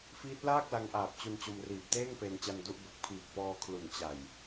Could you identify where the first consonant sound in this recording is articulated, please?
labial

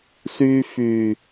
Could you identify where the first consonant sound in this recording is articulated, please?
alveolar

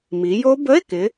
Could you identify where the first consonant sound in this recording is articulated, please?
labial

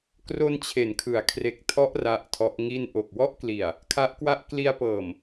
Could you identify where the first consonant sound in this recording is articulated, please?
velar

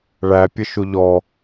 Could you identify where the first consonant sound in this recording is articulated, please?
retroflex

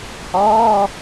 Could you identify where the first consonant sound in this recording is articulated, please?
glottal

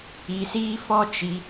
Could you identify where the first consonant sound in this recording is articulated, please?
alveolar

